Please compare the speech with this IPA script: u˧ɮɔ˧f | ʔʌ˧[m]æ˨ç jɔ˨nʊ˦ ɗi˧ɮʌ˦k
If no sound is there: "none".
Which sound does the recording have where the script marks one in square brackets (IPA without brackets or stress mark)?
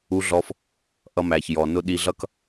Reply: m